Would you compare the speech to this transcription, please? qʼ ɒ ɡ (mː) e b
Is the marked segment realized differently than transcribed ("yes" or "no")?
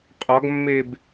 no